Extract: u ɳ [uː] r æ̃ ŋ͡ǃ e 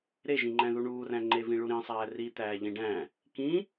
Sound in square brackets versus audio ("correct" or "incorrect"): correct